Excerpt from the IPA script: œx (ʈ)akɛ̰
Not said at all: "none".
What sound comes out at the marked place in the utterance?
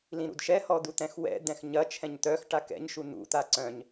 ʈ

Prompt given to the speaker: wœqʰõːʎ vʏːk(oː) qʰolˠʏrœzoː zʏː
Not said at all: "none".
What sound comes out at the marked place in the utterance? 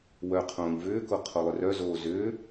o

